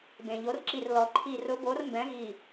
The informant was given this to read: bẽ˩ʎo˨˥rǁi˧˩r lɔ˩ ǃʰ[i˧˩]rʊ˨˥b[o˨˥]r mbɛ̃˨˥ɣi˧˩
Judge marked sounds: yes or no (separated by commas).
yes, yes